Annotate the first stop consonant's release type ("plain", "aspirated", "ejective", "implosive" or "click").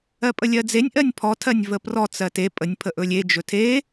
ejective